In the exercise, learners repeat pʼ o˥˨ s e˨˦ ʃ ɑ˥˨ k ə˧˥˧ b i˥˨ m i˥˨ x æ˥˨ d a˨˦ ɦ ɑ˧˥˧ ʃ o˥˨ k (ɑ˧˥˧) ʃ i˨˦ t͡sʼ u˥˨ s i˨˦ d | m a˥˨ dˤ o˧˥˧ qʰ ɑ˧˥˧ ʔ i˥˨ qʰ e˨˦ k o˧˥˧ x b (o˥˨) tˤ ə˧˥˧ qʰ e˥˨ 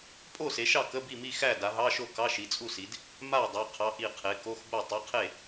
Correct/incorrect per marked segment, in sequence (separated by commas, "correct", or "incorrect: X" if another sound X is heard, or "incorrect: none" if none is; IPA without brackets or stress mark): correct, correct